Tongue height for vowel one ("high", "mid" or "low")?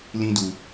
high